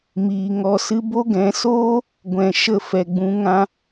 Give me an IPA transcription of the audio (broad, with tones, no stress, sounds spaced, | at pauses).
m iː˨ ŋ ɔ˨ s ɨ˧ b o˦ ɡ ɛ̃˨˦ s oː˦ | ɡʷ ɛ̃˨ ʃ ə˦˨ f ɛ˨ ɡ͡b ũ˨˦ ŋ ã˦